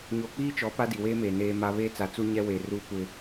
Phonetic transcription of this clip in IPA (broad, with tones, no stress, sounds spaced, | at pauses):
ɲ o˨ k͡p iː˦ t͡ʃ ɔ˨˦ p a˦ d i˨ w eː˦ m eː˨ n eː˦ m a˦ β eː˦ t͡s a˨ t͡s u˦ ɲ ɛ˦ w e˨ r uː˦ kʷ ɪ˦